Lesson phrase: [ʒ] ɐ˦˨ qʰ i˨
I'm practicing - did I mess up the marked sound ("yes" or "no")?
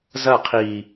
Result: yes